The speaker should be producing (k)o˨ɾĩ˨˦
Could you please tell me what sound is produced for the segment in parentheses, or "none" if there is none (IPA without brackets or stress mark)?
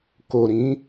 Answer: k